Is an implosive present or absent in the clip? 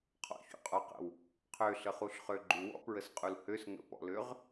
absent